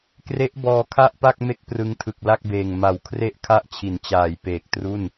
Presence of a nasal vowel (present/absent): absent